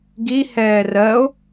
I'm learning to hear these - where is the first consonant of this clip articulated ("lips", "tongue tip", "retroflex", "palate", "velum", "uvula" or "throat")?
velum